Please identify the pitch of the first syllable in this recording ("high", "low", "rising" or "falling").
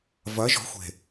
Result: rising